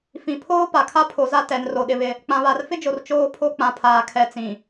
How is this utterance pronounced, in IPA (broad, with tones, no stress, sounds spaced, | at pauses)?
f ĩ˨ pʰ oː˦ p a˨ kʰ a˦ pʰ o˨ z a˦ t ɛ˨˦ n r o˨ ɗ ɪ˦ β ɪ˦ | k͡p ã˨ β a˨ r f ɪ˦ d͡ʒ o˨ r t͡ʃ oː˦ pʰ o˦ k͡p ã˨ pʰ aː˨ kʰ ɛ˨˦ t͡s ĩ˨